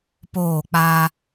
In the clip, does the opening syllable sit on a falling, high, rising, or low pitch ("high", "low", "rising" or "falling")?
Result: falling